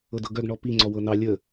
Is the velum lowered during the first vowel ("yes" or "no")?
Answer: no